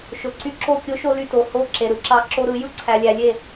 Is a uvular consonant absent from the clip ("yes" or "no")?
yes